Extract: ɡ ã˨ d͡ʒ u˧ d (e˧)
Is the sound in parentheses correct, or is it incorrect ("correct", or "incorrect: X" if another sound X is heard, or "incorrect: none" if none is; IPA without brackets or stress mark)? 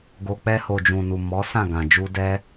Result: incorrect: ɛ˧